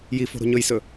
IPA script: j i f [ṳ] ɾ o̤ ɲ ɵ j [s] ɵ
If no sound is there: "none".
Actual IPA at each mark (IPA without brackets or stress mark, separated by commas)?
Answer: o̤, s